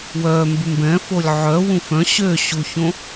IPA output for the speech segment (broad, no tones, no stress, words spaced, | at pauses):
wœː mbʉmbɛ̃ folʲʕœ wũfœ̃ ɕø ɕuçõ